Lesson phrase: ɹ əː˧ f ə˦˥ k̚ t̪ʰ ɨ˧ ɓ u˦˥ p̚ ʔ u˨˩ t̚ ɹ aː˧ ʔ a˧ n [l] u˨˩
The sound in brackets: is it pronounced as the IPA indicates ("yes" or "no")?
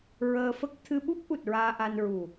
no